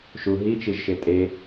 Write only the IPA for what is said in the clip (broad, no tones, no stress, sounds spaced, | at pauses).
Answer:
ʃ u ɦ i t͡ʃ i ʒ ʃ e tʼ e